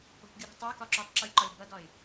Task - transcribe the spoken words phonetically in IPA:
o̤ p ɡʲ u ɾ e̤ tˤ o k ɒ ǁ u tˤ ǁ o lʲ ǃ ɒ lʲ b ʌ d ɒ ɪ̯

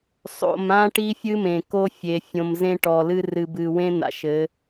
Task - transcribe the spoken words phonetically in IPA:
sˤ o̰˨ m ã˦ ʈ i˦ fʲ ɨ˦ m ẽ˨ k o˦ fʲ e˨ fʲ õ˨ m z ẽ˦ ʈ ɔ˨ l ɨ˦ r ɨ˨ b ɨ˨ w ẽ˦ n̪ a̰˨ ʃ ɘ˨˦

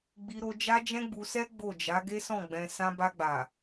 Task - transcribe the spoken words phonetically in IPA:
ɡ͡b i˧ ɾ o˧ d͡ʒ a˦ d͡ʒ ɛ̃˦ ɡ͡b u˧ s ɛ˦ ɡ͡b o˦˨ d͡ʒ a˨˦ ɡ e˦ s ɔ̃˦˨ ɡ͡b ɛ̃˧ s ã˧ b a˧ ɡ͡b a˨

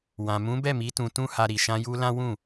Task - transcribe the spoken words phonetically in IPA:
w ã˨ m ũ˨˦ b ɛ˦˨ m i˨˦ t ũ˧ t ũ˦ h a˧ ɾ i˨ ʃ ã˧ j u˧ l ã˦ w ũ˦˨

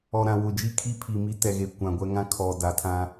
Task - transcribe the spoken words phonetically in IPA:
ɔ˨ ɾ ã˨ w ʊ˨ d͡ʒ i˦˨ kʰ i˦ pʰ i˨ m i˦ t ɛ˨ ɣ e˨ kʷ ã˨ ɡʷ ɛ˦ ŋ ã˦ kʰ ɔ˨ d a˨ tʰ ã˦

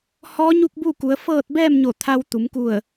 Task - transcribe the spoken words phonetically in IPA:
h ɔː˧˥ ɲ u˥˨ k̚ b uː˥˨ k u˩˧ ə̯ f ɤː˥˨ t̚ b ɛː˥˨ m ɲ o˧˩ t̪ʰ a˧ w t̪ u˩˧ m k u˧˩ ə̯

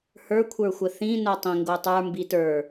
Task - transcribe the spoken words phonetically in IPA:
h ə˞ kʷʰ ə˞ xʷ ə θ ĩ n o tˤ ĩ ŋ ɡ o tˤ ə˞ m b i t ə˞

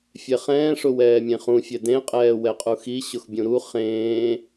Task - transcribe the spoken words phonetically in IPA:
fʲ ɛ χ ɛ̃ː ʂ ʊ w ɛː mʲ ẽ χ ũ fʲ ɛ d ẽ qʼ ɛː w ɛ qʼ u x i ɕ ʊ x bʲ ũ ɾ u χ ẽː

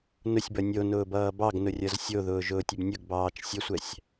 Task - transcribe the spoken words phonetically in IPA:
n ʊ sʲ b ʌ nʲ o n ʊː b ʌː b ɑ ɡ n ʊ rʲ ʌ z sʲ o ð ʊː ʒ ʊː tʲ ʊ b nʲ ʊ ɡ b ɑː t͡ʃ sʲ ə sʷ ɛ sʲ

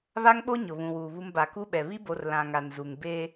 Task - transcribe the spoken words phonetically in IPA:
β a˦ ŋ ɓ o˦ ɲ ʊ˨ β ũ˨ w uː˨ β u˦ m b a˨ k u˦ ɓ ɛ˨ β i˦ b o˨ r l ã˨ ŋ a˨ n z u˨ ŋ b e˦

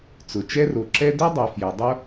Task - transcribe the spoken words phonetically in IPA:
t͡s ʊ˩ t͡ʃ ɛ˥ r o˩ ǁ ɛ˥ d ø˥ dˤ ɛ˩ f j ɛ˩ dˤ o˥

